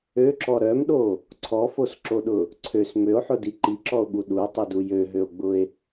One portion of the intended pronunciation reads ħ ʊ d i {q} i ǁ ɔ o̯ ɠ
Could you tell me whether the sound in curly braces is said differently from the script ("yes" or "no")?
yes